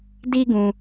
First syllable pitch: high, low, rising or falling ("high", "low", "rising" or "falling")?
high